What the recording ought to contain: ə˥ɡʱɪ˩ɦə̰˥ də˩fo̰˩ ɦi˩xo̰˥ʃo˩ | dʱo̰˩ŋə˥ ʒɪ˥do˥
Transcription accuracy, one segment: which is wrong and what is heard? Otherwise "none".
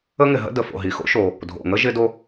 ɡʱ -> ŋ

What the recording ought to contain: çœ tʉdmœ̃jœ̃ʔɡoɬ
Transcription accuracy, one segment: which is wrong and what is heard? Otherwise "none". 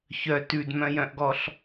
o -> ɔ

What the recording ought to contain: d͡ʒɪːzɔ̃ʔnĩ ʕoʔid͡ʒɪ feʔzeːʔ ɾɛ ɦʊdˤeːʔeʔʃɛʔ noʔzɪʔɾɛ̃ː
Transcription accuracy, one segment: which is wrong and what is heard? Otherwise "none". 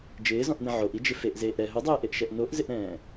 none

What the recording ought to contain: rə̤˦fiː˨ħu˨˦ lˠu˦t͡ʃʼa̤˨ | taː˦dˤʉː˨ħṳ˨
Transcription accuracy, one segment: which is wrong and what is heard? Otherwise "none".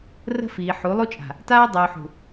none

